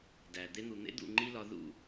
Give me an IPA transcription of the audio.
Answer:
d æ˨ d̪ e˧ n̪ u˨ n̪ ḛ˦ d̪ ṵ˦˨ ŋ͡ǃ i˦ l ɒ˧ ð ṵ˦˨

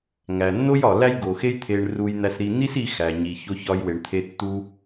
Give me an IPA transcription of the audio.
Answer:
ŋ æ˩ nː o˥ j ɒ˩ l æ˥ j ɡ o˩ x e˥ j t̪ʰ e˧ ɳ r u˧ j n̪ æ˧ s ɾ i˧ n̪ i˥ s i˧ x æ˩ ɲ i˩ ç o˧ ç ɒ˧ j w e˩ ɳ t̪ʰ e˧ tː u˧

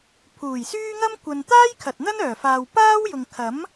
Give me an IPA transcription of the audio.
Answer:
pʰ uː˨˩ j s yː˥ ŋ ɐ˥ m kʷ ɐ˨ n t̪ aː˥ j kʰ ɐ˨ t̚ n̪ ɐ˥ n œː˨˩ f aː˨ w p aː˥ w j ʊ˨ ŋ kʰ ɐ˨˥ m

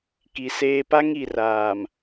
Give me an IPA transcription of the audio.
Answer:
k i˨ s eː˦ p a˦ ŋ i˨ r aː˨ m

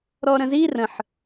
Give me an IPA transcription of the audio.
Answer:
ɾ ɔ ɾ ə̃ z i r ə̃ ħ

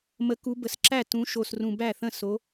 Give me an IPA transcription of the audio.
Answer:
m ə˨˦ k u˨˦ b ə˨˩ s ǁ æ˥˩ t ũ˨˦ ʃ o˨˩ s r ũ˨˩ b æ˥˩ θ ə̃˥˩ s o˨˦

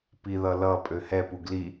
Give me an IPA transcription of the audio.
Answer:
p i ð ʌ l ʌ pʼ ø h ɛ p u ɡ l i

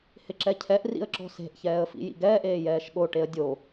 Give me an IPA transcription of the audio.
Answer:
h ɪ ǁ ɛ cʰ ɛ ʔ r ḭ ə̯ ǁ ɔ̤ s e̤ ʔ ç ɛː ə̯ f ḭ j ḭ ɡ ɛː ʔ eː j ɛː ʃ ɠ o ʈ e ə̯ dʲ o

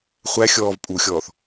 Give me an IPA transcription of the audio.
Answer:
χʷ æ xʲ ɔː v pʼ u xʲ ɔː θ

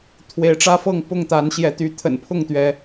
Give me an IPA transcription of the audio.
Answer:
t̪ʰ w e˨˦ ɪ̯ ʈ͡ʂ ä˦ f ɤ˥˨ ŋ p ʊ˥˨ ŋ t̪ a˨˦ n ɕ j ɛ˨˦ t̪ y˨˦ t̪ʰ ə̰˨˩ n pʰ ʊ˥˨ ŋ t̪ ɥ ɛ˨˦

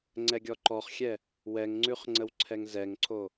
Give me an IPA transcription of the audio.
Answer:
ŋ͡ǀ ɛ ɡʲ ɔ ǃ ɔ χ xʲ ɛ | w ɛ ŋ ŋ͡ǀ ʉ χ ŋ͡ǀ ə w ǀʰ ɛ ŋ z ɛ ŋ ǀʰ o

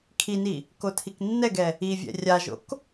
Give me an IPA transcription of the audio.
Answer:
kʰ i n i | k o tʰ i k nː ɛ ɡ ɛ | i vʲ ɛ̰ rʲ a ʒ o̰ k

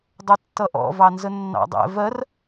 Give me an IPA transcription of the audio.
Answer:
dˤ ʊ tː ʌ ʔ ɔ̰ v ɑ n z ə nː ɑ̰ dˤ ɛ̰ v ɜ r

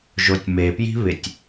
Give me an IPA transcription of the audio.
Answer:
ʒ o tʲ m e p j i̤ β ɪ tʲ

